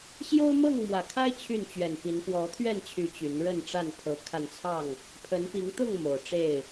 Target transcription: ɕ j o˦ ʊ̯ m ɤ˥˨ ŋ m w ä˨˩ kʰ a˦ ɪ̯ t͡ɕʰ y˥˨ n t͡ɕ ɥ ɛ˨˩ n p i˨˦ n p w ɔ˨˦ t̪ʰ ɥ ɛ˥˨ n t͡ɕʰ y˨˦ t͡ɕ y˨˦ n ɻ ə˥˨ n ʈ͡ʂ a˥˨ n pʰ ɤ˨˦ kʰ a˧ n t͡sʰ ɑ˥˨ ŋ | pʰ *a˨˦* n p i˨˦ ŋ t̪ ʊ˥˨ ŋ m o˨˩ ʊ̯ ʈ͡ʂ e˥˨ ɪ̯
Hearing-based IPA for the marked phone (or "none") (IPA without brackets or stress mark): ə˨˦